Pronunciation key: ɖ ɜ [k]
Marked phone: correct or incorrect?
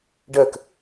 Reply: correct